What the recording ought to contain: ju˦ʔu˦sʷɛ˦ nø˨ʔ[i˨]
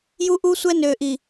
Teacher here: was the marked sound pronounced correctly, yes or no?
yes